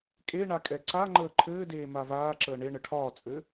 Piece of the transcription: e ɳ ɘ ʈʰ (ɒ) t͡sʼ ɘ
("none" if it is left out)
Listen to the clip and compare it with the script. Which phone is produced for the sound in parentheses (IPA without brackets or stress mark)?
ɒː